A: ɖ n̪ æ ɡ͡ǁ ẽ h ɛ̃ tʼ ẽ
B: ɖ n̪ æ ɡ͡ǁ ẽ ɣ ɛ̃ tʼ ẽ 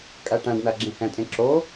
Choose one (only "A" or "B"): A